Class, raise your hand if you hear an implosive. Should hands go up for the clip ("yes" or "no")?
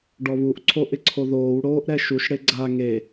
no